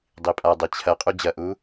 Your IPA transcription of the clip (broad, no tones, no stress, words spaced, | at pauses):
dˤipʼadˤe t͡ɕʰɐqʼu d͡ʑɐʔu